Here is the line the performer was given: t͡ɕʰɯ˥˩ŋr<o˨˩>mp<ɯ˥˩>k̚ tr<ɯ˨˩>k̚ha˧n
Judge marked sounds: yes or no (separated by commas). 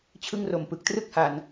no, no, no